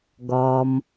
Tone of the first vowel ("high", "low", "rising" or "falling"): low